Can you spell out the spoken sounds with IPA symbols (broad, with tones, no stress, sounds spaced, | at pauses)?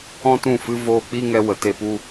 ɔ̃˦ t ũ˦˨ f ɨ˦ v oː˧ k͡p i˦ ŋ ɛ˧ w ə˨ t e˧ p u˦